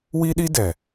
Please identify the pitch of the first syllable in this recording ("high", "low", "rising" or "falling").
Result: high